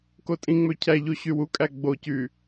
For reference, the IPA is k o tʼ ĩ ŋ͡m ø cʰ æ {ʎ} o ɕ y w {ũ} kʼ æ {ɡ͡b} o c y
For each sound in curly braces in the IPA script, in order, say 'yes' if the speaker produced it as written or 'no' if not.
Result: yes, no, yes

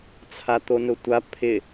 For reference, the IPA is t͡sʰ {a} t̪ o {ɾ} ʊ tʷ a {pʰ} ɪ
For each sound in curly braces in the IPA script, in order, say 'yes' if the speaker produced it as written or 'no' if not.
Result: yes, no, yes

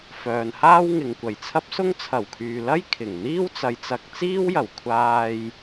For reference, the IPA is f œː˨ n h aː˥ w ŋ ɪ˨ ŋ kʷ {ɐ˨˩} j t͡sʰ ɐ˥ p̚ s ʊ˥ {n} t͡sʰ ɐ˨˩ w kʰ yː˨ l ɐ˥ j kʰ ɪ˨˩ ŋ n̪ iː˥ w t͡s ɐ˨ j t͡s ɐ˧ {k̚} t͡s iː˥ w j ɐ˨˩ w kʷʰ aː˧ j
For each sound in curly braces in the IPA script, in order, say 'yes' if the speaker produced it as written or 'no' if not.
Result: yes, no, yes

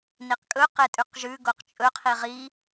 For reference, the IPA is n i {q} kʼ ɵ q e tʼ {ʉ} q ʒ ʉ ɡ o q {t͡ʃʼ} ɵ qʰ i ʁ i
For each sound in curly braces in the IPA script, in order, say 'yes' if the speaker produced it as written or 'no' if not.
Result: yes, yes, yes

